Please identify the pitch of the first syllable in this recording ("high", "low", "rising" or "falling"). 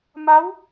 rising